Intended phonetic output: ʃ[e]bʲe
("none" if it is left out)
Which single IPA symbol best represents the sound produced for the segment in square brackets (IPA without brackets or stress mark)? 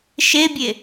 e